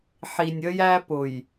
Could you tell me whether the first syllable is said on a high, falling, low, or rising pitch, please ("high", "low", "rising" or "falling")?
low